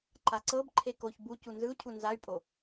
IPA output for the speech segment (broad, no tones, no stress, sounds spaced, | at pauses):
ǃ a ǀ ɤ b ǃʰ e k o ç b u c u n z ɯ u̯ cʰ u n z a y̯ pʼ o